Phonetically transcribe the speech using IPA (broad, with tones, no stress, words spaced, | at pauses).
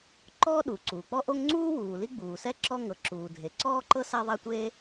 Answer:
ǃɔː˥ ɗu˩ ǀuː˩k͡pɔ˥ʔo˥ŋ ŋ͡ǀuː˥ wuː˩ li˥ɡ͡buː˩sɛ˥ ǁɔ˥ ŋɤ˩ ǁuː˩dʱe˩ ǀɔː˥ǃɤ˥ sa˥ðˤa˥ tʷe˥